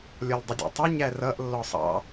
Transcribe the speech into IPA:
lʲ ɔ l dˤ ə dʲ ɔ̰ tˤ ə ɲ æ r ʌ ʔ lː ɔ sˤ ɑ̰

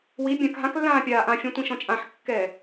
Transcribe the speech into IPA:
w i bʲ ã k ɦ ã k lː ãː pʲ aː ʔ ã fʲ ɛ̃ tʷ ĩ ʃ ɔ̃ t͡ʃʼ ã ħ kː ɛː

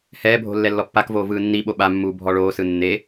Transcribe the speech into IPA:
h ɛː bʱ o̤ lː ɛ lː ɔ pː a k v oː v ɯː nː i ɓ o ɓ a mː uː bʱ ɔ ɭ oː s ɯ nː e

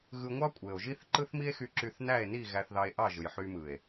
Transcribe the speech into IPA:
ɣ ɯ˧ ŋʷ ɑ˦ kʷʼ e˨ o̯ ʒ i˦ θ ǃ ɯ˦ θ m i˦ e̯ x y˧ ǁ y˧ θ n æ˦˨ e̯ n i˦˨ ɣ æ˧ θ ð ɑ˧ e̯ ʔ ɑ˦˨ ʒ ɯ˨ j ħ y˧ m ɯ˨ e̯

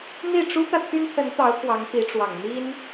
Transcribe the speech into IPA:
n̪ i˥˩ ʈ͡ʂ u˥ t̪ ä˨ t̪ʰ y˥ n t̪ʰ ə˧˥ n t̪ ɑ˧˥ ʊ̯ k w ɑ˧˥ ŋ p i˧˥ ʈ͡ʂ w ɑ˨˩ ŋ n̪ i˥ n

